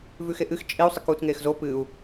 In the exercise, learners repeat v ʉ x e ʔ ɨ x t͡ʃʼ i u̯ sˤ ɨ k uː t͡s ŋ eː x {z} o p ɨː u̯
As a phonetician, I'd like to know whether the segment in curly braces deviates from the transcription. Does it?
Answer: no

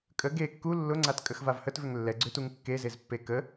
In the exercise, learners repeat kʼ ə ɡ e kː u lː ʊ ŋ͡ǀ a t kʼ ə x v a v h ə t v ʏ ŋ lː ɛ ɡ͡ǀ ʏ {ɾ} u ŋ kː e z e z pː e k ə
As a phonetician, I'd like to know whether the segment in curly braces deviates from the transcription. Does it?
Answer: yes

